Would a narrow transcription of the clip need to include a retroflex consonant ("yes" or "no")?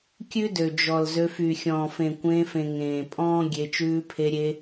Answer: no